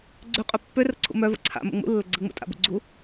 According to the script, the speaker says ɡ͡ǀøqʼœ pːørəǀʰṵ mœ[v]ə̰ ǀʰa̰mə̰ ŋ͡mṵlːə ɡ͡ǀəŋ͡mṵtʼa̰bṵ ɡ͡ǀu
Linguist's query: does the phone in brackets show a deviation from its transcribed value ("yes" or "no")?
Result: no